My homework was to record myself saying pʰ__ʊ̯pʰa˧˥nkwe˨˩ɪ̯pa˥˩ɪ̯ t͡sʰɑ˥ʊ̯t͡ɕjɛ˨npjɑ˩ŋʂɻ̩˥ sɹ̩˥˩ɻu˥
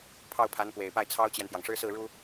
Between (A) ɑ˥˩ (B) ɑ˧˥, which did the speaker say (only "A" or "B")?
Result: A